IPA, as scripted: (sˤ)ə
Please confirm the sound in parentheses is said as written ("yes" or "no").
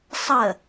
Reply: yes